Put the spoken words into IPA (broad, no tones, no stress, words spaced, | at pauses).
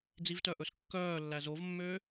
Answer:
d͡zivtœʔɵs kːœːlːæ zovmːøː